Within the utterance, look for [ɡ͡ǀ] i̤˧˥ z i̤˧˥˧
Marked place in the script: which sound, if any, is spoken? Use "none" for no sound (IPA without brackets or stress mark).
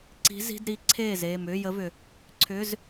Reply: ǀ